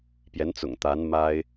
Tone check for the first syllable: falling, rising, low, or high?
rising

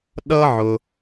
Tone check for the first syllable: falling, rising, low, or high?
high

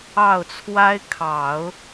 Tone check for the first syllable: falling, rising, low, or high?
falling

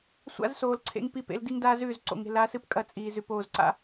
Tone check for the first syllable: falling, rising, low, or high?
high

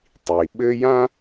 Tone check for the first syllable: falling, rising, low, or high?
low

